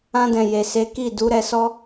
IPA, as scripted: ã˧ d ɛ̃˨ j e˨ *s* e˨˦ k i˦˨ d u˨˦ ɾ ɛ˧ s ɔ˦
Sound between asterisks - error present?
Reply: no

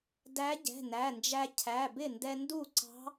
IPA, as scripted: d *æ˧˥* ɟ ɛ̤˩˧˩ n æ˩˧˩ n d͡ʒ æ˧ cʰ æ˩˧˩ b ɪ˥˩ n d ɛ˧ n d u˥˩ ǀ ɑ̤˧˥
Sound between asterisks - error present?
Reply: no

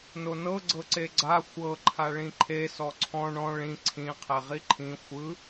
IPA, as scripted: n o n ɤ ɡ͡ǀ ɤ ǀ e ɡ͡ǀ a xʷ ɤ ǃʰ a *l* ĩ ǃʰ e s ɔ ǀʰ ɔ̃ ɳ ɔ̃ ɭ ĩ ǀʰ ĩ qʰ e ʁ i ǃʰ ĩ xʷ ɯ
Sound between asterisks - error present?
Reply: yes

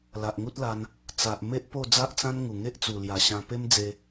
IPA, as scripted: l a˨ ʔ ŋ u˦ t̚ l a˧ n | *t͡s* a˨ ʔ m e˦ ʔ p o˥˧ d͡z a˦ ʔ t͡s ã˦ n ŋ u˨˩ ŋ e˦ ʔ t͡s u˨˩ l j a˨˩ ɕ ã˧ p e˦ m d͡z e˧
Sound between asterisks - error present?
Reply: no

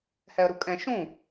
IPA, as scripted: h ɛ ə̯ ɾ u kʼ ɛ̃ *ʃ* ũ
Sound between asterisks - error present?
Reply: no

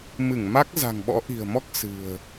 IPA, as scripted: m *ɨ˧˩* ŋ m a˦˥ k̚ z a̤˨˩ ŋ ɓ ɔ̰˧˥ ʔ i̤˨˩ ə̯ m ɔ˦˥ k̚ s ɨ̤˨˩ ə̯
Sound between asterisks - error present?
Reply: no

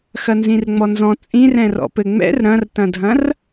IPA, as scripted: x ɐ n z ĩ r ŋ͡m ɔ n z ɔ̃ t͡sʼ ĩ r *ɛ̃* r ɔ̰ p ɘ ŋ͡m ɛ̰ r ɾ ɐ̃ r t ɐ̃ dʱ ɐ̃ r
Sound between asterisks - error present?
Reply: no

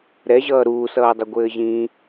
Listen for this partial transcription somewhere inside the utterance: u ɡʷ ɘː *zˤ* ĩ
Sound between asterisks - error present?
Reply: yes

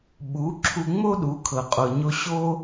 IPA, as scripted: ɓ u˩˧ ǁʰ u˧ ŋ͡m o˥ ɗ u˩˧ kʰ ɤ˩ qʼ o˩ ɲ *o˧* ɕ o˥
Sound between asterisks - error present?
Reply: no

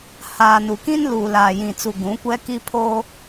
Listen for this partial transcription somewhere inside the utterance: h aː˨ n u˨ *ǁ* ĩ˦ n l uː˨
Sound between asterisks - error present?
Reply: yes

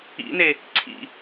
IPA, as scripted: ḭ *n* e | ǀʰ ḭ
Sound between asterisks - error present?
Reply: no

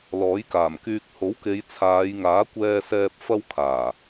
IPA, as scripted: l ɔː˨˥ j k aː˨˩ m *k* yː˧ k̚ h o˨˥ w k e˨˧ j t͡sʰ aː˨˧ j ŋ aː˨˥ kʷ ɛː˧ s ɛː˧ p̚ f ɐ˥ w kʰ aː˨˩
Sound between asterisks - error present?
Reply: no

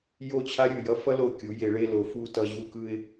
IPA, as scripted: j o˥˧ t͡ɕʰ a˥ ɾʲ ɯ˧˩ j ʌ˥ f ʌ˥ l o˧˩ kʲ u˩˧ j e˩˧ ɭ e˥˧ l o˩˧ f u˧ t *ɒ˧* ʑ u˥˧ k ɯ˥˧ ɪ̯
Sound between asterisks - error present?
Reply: yes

